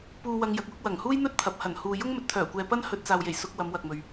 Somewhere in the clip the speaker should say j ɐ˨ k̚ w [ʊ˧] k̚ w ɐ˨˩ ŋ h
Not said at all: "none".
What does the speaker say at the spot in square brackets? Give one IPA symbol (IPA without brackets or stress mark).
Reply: ʊ˧